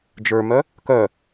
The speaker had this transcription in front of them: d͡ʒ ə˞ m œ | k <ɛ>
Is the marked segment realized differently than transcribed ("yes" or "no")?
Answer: yes